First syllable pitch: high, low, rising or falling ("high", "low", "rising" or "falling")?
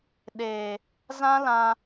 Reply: low